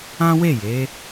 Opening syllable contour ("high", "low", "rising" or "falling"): high